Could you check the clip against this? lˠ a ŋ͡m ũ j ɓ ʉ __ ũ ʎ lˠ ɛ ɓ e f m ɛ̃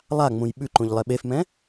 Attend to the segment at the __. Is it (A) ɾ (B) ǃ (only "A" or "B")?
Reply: B